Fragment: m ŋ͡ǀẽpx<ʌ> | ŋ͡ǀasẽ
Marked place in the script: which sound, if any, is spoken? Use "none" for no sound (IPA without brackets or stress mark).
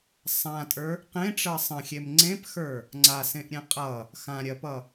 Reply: ə˞